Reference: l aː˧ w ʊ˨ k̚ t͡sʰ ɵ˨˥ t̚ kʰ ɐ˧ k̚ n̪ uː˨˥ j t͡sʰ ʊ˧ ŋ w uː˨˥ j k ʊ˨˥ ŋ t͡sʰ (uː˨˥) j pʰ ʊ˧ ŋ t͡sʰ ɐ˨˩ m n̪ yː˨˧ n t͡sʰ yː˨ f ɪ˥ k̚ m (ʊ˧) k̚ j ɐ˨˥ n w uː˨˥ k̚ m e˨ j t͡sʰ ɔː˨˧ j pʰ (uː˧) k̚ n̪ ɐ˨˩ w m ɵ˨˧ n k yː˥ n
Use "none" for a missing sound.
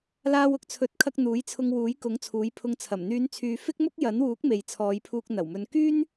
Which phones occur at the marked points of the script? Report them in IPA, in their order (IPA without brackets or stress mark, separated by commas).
uː˨˥, ʊ˥, uː˧